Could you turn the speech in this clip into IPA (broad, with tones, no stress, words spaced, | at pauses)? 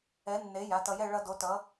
ɛ˨˥ nːe˨˥ ja˩˧˩tʌ˧jɛ˥˧ ɭʌ˦˥ do˨˥tʌ˨˥